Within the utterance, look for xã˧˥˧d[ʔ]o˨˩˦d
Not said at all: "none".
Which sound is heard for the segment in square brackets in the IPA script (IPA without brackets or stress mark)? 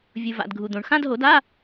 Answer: ɦ